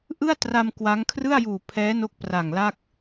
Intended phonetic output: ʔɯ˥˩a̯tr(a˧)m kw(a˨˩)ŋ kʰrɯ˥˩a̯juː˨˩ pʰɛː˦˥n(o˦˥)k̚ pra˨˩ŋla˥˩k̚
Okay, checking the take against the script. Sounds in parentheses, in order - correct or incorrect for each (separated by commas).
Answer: correct, incorrect, correct